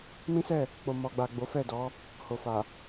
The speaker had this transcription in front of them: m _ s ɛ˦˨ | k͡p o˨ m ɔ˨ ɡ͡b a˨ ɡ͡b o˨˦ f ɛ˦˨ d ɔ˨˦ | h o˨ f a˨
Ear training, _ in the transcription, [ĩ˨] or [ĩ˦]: ĩ˦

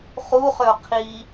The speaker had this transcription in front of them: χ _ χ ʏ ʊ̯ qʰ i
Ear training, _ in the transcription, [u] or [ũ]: u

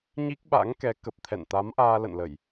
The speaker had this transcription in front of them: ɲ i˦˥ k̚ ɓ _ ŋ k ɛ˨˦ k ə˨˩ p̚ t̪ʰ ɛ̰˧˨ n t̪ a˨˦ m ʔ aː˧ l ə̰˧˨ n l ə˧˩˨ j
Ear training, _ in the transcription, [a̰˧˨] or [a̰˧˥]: a̰˧˥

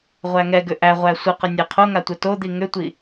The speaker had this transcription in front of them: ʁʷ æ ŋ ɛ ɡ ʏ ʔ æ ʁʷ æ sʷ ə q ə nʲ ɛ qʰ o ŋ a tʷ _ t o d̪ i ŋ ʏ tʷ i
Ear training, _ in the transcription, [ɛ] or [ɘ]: ɘ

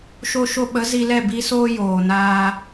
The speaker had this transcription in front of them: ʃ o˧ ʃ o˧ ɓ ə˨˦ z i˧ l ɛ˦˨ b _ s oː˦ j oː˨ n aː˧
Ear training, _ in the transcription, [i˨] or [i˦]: i˦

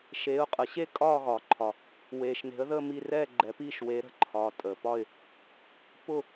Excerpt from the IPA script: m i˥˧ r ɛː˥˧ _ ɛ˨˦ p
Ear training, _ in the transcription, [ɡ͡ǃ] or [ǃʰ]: ɡ͡ǃ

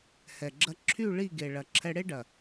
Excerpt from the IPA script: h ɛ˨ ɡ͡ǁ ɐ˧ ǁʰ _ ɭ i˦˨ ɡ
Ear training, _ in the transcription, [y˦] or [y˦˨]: y˦˨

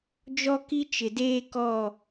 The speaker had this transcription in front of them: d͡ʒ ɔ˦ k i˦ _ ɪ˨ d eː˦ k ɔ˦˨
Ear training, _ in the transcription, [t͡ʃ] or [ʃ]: t͡ʃ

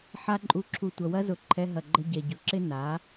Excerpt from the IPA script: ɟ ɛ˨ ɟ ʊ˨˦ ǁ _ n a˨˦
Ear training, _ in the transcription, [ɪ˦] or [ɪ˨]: ɪ˦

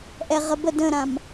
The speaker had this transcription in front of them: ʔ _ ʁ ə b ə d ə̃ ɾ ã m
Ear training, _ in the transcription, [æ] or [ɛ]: ɛ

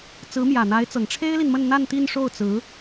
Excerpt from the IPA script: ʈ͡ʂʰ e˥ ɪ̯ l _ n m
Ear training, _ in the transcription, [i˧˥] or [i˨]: i˨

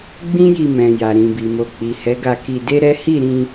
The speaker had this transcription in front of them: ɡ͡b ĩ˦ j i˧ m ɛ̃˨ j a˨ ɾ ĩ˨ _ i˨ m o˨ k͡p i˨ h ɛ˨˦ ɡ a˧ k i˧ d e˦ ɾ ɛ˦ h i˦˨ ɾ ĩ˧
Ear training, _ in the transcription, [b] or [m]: b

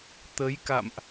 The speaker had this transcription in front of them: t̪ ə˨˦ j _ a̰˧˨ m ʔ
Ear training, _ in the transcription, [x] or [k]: k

